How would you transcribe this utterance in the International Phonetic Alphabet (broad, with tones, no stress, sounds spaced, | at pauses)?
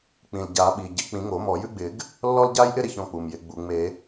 k͡p ĩ˩ l ɟ a˨˩˦ ɓ i˩ ɟ ɪ˨˩˦ k͡p ĩ˨˩˦ ŋ o˨˩˦ m ɔ˨˩˦ j ʉ˥ ɡ͡b ɪ˨˩˦ ɡ | lː ɔ˥ l ɟ a˥ j ʔ ɪ˥ ɾ ɪ˥ ç ɔ̃˥ k͡p u˩ m j ɪ˨˩˦ ɡ͡b u˩ ŋ͡m e˨˩˦